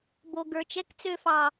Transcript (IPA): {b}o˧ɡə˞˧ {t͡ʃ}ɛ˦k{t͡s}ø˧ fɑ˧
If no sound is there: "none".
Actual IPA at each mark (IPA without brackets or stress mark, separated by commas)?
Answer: b, t͡ʃ, t͡s